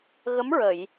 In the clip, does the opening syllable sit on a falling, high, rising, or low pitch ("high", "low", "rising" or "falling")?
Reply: rising